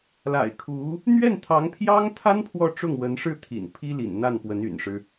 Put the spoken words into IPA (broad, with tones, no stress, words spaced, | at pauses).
la̰˨˩ɪ̯kʰu˧˥ | n̪ɥɛ˥˩nt̪ʰɑ˧˥ŋpʰjɑ˥ŋt̪ʰa˥n pʰwɔ˥˧ʈ͡ʂʊ˥˩ŋwə˧˥n ʂɻ̩˥˩t̪ʰḭ˨˩n pʰi˥lḭ˨˩n n̪a˥˩npwə˧˥n y̰˨˩nʂɻ̩˦